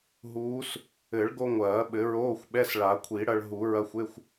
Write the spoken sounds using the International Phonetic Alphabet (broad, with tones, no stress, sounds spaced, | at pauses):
ɦ uː˧˥ s | ɘ˨˩˦ ɭ ɡ o˧ ŋʷ ɐː˨˩˦ ɓ ɘ˨˩˦ ɹ oː˧˥˧ xʷ ɓ ɛ˧˥˧ s ɭ a˨˩˦ kʷʰ i˨˩˦ ɽ ɐ˧ ɭ ɦ u˨˩˦ ɹ ɐ˧˥˧ xʷ e˧˥˧ xʷ